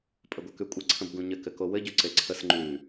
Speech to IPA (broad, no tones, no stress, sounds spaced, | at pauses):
pʼ ə ɡʷ ə k ʉ kʷʼ ə ǀʰ ə̃ b ɡ ũ ɲ ɘ k ɘ k o w ɘ ɟ ʉ ǀ e ǀʰ ə s ŋ͡ǃ ʉ